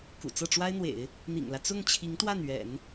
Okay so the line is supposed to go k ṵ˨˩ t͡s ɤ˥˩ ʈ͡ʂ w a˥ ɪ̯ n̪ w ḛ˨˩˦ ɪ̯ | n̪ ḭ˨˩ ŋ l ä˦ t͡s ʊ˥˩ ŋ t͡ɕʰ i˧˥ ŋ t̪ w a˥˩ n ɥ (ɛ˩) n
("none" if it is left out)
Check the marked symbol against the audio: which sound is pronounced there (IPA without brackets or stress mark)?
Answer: ɛ̰˨˩˦